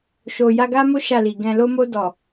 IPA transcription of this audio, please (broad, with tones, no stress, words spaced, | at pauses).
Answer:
ʃo˨ ja˧ɡa˦mo˦ ʃa˦˨li˨ ɡɛ̃˨lo˧mo˧ dɔ˨